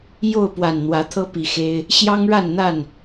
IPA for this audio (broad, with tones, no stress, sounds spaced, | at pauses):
j o˥˨ ʊ̯ p w a˨˩ n n̪ w ä˨˦ t̪ʰ ɤ˦ p i˨˦ x e˦ ɪ̯ | ɕ j ɑ˦ ŋ ɻ a˥˨ n n̪ a˥˨ n